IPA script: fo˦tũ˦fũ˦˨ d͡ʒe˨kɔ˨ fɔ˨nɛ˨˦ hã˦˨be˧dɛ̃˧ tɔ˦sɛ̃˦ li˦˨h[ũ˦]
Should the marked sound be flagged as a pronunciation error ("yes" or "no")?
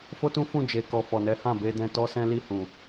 yes